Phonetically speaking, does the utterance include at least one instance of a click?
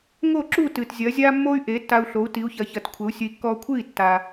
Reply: yes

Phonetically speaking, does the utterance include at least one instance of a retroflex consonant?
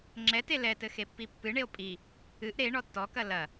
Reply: yes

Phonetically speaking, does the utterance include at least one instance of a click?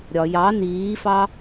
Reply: no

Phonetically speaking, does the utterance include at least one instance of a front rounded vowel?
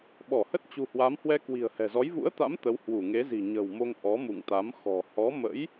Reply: no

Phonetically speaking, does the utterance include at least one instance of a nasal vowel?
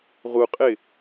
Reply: no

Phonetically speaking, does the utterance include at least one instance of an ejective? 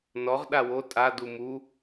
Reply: yes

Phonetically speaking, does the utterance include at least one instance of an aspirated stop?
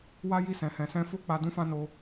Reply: no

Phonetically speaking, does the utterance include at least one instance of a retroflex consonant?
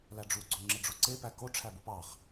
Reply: yes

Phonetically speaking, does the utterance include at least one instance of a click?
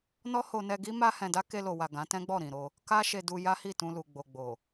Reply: no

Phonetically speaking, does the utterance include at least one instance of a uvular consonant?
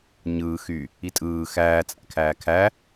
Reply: no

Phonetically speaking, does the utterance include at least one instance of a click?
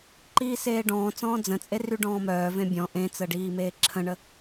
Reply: yes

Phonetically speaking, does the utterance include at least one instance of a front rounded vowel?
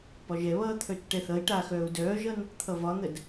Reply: yes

